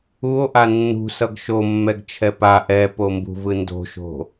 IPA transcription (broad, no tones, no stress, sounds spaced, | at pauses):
u o̯ ʔ a nː ṳ s ʌ ɡ ʃ o mː ɛ ɡ t͡ʃʰ ɛ p a ʔ ɛ p o m b ṳ v ɯ n d o̤ ʃ o̤